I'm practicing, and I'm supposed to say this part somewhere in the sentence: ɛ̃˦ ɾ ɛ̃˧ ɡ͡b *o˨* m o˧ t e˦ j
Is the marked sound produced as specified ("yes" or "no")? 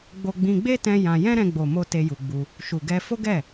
yes